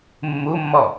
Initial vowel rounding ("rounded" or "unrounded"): rounded